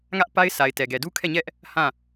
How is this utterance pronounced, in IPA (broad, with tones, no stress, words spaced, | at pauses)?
ŋä˦ʔpa˦ɪ̯ sʰa˨ɪ̯tɛ˨ɡɛ˨du˦ kʰɛ˦˨ɲɛ˦ʔ | hã˦˨